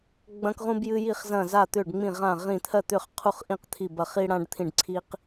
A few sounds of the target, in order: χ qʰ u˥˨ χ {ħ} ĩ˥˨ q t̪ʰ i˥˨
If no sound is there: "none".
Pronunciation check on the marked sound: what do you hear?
ʔ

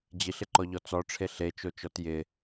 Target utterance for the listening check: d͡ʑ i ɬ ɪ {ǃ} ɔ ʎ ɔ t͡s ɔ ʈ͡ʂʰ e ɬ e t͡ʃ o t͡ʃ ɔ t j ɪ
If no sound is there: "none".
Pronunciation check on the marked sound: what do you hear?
ǃ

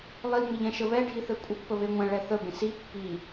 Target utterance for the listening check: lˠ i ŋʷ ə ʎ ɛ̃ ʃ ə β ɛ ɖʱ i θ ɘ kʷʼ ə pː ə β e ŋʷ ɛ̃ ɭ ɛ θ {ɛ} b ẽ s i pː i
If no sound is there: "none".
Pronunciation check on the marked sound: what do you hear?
ə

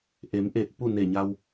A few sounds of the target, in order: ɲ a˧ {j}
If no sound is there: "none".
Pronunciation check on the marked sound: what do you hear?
w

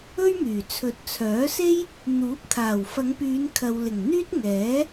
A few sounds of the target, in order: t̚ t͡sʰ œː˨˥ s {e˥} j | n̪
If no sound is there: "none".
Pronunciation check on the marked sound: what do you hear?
e˥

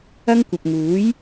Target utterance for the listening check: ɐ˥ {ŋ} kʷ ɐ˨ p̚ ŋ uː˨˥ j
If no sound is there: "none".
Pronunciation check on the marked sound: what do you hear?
ŋ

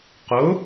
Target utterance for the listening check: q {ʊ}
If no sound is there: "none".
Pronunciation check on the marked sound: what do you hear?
ʊ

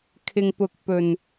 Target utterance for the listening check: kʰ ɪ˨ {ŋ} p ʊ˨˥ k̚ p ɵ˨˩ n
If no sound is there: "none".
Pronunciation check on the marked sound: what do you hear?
ŋ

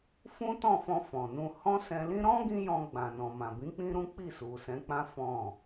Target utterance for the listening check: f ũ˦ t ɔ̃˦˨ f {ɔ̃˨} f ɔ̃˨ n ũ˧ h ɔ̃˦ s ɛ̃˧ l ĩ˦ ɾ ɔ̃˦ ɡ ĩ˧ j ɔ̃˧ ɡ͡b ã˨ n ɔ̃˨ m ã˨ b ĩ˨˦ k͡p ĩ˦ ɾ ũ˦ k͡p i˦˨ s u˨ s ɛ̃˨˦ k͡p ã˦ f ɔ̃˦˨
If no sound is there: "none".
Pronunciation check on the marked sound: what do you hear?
ɔ̃˧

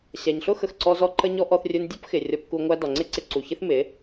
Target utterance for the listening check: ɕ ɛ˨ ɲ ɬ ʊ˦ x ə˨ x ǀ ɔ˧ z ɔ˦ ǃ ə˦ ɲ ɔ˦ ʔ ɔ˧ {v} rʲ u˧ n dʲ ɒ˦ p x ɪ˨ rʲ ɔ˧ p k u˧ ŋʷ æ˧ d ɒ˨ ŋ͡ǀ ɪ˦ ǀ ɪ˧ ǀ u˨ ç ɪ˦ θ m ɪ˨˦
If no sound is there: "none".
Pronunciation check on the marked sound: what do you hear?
θ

